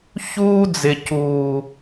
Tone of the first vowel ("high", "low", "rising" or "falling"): high